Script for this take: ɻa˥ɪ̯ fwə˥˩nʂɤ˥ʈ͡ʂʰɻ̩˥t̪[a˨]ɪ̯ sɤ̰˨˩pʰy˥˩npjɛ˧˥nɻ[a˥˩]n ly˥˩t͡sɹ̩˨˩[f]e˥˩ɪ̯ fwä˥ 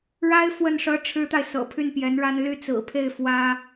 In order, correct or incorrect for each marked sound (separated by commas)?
correct, incorrect, incorrect